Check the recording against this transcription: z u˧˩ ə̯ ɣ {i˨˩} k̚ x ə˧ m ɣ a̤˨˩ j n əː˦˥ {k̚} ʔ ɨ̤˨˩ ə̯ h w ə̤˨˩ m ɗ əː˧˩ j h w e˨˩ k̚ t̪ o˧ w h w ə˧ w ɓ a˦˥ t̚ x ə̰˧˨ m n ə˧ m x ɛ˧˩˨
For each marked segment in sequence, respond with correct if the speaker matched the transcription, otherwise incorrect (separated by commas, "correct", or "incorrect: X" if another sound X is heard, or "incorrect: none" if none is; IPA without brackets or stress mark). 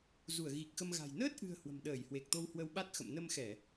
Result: correct, incorrect: t̚